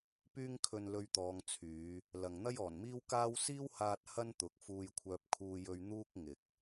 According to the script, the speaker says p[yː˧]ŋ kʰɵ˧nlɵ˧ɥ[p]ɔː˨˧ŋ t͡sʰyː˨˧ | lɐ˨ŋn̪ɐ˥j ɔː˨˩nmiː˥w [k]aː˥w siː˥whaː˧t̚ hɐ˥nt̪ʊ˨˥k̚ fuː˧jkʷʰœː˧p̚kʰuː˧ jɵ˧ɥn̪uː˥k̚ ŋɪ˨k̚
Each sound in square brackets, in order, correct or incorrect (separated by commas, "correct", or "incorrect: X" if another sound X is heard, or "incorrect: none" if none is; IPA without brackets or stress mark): correct, incorrect: t̪, correct